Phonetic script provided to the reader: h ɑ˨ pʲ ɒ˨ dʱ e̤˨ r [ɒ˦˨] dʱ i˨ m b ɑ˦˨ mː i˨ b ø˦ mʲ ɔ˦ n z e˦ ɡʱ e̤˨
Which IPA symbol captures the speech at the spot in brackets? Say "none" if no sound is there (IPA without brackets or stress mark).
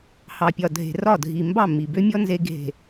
ɒ˦˨